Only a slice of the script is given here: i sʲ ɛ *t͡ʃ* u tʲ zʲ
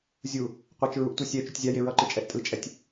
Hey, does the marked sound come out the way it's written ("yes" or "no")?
yes